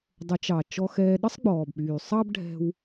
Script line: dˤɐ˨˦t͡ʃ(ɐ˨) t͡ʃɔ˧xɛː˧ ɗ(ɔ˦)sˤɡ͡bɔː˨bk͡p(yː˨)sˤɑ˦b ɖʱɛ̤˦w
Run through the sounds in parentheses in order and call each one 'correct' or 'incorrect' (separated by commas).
incorrect, incorrect, correct